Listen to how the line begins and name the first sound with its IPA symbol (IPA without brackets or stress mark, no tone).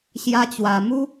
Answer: ɕ